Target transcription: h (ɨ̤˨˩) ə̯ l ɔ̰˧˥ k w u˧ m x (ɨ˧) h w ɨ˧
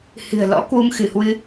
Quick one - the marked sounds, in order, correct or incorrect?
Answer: correct, incorrect: ɨ˧˩

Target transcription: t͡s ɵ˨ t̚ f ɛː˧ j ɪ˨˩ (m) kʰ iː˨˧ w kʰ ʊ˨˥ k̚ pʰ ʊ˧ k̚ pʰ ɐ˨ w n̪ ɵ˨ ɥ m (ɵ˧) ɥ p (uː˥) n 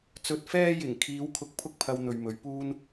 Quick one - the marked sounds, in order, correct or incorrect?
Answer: incorrect: ŋ, incorrect: ɵ˨˧, correct

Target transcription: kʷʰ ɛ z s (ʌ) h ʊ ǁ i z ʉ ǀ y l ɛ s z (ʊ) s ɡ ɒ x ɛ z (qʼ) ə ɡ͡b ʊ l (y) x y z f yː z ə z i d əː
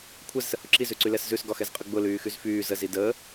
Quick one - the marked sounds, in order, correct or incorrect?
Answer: incorrect: ə, incorrect: ʉ, correct, incorrect: yː

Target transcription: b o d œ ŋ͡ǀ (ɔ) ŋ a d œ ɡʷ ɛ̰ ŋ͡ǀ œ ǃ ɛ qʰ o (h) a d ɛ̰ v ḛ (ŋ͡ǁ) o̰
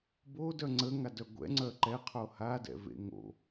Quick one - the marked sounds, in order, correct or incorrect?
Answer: incorrect: ə, correct, incorrect: ŋ

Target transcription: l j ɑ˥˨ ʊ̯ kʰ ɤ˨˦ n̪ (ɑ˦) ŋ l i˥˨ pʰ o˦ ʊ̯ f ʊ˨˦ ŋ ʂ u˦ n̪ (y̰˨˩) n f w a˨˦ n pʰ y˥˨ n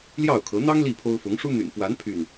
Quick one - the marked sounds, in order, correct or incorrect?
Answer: correct, correct

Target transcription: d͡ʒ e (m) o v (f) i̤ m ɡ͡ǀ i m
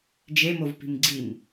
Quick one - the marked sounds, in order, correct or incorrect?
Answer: correct, incorrect: p

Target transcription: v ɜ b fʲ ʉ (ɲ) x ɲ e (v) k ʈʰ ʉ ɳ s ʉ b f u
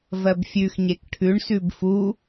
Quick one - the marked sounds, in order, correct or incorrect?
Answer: incorrect: none, incorrect: none

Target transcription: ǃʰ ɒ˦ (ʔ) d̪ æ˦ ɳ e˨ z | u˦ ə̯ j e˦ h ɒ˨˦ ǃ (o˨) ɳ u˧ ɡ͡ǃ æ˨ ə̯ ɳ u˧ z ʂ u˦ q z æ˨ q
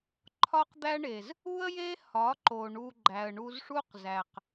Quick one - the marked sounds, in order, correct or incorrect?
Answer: incorrect: q, correct

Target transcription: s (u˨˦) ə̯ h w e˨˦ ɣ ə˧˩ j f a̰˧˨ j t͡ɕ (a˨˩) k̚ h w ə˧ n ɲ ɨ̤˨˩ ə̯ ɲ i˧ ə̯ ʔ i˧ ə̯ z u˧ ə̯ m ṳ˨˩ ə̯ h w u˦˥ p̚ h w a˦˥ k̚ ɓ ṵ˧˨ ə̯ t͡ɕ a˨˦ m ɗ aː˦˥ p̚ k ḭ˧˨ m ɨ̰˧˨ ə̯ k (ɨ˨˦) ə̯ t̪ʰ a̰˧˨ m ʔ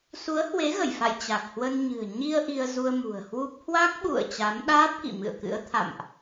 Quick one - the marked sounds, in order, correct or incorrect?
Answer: correct, correct, incorrect: ɨ̰˧˥

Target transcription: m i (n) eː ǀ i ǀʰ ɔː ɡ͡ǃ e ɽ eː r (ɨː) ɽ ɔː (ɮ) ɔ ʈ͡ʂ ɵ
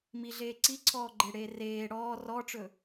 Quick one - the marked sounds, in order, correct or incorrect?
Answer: incorrect: ɮ, incorrect: eː, incorrect: r

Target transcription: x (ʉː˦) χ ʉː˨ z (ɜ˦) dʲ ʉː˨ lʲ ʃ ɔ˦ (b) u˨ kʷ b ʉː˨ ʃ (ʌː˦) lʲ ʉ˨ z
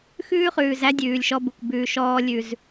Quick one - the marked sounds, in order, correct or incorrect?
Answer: correct, incorrect: æ˦, correct, incorrect: ɔː˦

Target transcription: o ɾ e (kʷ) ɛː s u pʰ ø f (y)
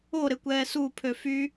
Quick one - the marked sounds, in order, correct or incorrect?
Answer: correct, correct

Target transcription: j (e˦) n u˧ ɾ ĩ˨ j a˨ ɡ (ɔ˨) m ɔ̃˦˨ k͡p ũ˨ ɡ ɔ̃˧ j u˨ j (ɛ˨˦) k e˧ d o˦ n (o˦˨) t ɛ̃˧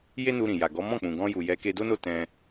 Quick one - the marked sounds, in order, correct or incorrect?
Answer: correct, incorrect: ɔ˨˦, correct, correct

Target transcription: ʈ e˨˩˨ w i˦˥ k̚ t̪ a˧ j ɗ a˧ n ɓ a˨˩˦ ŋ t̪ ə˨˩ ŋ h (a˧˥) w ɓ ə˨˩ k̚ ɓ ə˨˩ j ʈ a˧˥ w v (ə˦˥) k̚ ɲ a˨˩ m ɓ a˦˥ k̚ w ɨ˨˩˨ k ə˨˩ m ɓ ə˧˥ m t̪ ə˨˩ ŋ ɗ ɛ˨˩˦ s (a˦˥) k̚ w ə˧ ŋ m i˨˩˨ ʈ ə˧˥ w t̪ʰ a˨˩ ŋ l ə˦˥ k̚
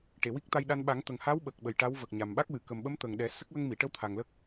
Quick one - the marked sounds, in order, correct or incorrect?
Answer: correct, incorrect: ə˨˩, incorrect: ə˦˥

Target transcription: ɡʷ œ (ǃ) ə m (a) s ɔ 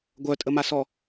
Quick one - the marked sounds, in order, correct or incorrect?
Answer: incorrect: tʼ, correct

